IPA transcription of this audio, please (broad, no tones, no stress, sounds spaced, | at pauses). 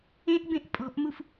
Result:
ẽ ʔ b ẽ ʔ pʼ ɔ̤ ʔ m u f